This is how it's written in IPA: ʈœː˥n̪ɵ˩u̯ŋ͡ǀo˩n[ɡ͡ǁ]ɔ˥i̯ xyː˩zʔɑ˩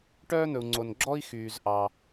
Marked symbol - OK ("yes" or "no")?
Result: yes